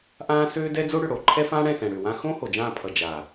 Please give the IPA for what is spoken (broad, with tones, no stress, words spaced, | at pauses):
ʔãː˦søː˦dɛ˦ d͡zo˦ɽʏ˨ɽo˨ǃʰɛ˦ fãː˦ɽɛ̃˦˨sɛ̃˨ɽʏː˨ wã˦ xõ˦ ho˨d͡ʒãː˦˨pʰʌ˨ d͡ʒa˨